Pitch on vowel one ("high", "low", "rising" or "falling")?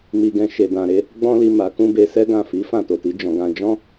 low